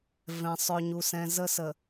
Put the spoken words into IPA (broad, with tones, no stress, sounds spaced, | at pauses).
v ɛ̃˨ sˤ œ˨ ɲ u˨ s ɛ̃˨ z ə˦ s ə˨